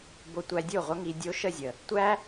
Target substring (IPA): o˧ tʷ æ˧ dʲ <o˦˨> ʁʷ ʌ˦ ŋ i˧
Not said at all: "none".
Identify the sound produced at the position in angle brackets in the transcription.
o˦˨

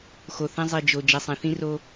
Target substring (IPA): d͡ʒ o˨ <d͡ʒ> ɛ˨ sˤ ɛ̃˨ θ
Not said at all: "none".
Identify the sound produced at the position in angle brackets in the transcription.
d͡ʒ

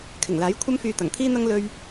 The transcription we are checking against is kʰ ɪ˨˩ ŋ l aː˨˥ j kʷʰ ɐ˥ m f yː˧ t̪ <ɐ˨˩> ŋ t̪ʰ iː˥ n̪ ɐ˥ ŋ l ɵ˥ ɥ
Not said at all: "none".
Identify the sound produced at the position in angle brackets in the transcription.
ɐ˨˩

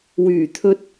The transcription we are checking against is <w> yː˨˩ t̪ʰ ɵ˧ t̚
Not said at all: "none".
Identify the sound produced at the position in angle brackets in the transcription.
w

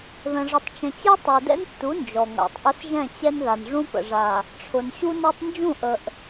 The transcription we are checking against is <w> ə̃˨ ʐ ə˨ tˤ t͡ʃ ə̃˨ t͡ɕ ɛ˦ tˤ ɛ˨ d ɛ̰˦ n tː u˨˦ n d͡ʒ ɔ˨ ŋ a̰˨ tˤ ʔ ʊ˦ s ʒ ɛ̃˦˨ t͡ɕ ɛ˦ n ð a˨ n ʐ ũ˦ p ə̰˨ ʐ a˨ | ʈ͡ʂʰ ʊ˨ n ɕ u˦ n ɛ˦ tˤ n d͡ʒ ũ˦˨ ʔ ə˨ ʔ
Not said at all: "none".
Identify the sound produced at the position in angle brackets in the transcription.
ð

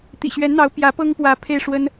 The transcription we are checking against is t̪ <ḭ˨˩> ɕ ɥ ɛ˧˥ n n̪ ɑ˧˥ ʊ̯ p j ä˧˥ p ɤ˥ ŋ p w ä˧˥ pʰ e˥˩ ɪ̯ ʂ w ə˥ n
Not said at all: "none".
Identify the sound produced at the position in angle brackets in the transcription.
ḭ˨˩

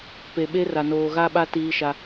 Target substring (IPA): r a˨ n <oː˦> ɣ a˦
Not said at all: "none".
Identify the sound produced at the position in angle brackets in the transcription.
oː˨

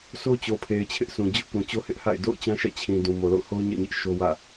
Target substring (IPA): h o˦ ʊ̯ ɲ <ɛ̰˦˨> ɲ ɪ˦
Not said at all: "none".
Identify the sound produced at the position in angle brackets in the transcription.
ɛ̰˦˨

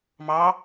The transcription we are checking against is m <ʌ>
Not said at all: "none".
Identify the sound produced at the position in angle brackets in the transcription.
ɑ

